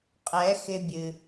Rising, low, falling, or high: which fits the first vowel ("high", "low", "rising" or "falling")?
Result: rising